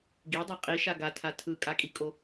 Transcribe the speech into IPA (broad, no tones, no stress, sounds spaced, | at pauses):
ɡ i dˤ e qʼ i ʃ a ɡ a tʰ a tʰ ɯ kʼ a kʼ i kʼ o